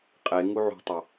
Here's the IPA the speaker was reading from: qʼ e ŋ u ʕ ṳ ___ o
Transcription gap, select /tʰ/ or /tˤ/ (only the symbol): tˤ